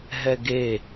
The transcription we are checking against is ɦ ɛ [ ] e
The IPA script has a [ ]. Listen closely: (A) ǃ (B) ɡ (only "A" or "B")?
B